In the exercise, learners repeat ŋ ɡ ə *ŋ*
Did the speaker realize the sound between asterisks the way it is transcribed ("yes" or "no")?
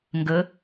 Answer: no